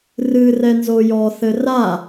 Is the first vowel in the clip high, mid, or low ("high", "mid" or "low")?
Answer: high